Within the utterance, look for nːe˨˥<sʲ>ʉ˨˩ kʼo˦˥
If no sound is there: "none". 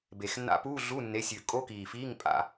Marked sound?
sʲ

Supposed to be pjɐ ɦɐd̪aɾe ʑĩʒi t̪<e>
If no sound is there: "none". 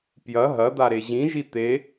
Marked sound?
e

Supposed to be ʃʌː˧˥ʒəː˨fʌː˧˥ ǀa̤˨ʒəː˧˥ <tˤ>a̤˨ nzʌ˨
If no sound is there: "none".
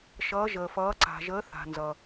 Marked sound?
θ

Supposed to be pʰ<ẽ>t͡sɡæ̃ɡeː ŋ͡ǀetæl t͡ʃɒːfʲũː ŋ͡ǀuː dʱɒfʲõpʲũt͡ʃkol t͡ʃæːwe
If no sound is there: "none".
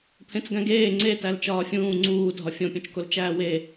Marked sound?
ẽ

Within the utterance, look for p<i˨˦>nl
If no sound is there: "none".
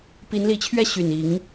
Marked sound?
i˨˦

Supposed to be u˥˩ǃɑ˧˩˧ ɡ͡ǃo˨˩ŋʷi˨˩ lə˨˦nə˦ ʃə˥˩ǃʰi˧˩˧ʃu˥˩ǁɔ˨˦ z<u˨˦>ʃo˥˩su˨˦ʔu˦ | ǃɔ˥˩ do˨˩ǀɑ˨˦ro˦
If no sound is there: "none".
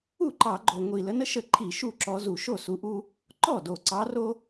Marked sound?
u˨˩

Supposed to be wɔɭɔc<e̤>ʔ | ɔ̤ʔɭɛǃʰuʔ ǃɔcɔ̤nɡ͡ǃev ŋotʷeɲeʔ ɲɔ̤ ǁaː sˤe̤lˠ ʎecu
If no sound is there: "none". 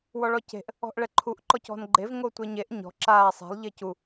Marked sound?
e̤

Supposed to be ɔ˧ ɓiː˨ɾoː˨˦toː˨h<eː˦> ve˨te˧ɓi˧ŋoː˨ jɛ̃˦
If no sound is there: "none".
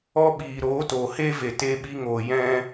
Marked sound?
eː˦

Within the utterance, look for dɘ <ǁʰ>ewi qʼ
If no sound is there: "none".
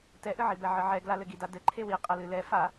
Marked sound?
ǃʰ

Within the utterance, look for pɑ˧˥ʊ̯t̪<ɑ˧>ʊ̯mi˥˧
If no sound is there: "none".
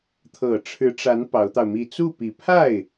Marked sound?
ɑ˧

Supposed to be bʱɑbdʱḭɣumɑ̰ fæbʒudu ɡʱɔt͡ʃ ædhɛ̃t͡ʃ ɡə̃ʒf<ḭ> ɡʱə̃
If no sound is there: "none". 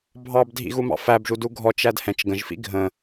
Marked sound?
ḭ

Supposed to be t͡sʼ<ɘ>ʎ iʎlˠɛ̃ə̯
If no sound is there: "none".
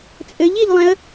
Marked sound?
ɘ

